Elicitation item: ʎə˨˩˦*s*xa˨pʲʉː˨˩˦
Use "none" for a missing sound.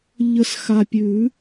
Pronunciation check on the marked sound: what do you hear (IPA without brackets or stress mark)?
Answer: s